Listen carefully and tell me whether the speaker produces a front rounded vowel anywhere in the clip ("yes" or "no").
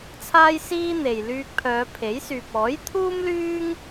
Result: yes